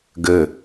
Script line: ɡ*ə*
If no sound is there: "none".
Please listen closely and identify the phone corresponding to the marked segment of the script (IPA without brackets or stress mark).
ə